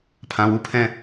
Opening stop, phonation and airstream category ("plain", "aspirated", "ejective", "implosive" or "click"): aspirated